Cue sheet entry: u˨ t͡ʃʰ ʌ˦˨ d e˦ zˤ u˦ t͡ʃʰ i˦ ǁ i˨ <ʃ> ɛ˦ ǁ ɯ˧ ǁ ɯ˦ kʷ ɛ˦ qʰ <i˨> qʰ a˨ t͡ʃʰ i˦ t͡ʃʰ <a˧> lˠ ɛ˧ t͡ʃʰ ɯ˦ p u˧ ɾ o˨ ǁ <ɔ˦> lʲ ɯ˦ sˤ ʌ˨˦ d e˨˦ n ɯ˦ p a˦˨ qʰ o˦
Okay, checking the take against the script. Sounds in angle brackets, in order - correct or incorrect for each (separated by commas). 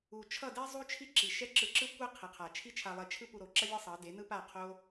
correct, correct, correct, incorrect